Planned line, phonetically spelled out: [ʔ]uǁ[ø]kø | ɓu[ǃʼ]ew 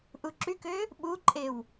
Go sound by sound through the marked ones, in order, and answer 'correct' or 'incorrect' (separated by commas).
correct, incorrect, correct